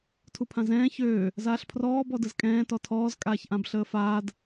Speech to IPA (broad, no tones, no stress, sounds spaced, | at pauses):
tʰ u pʰ ã z ɛ̃ː ç øː | z aː ɬ pʰ r ɔː b ɔ d ə z kʼ ɛ̃ː t ɔ tʰ ɔː z kʼ aː ç ʔ ã b ɬ əː f aː d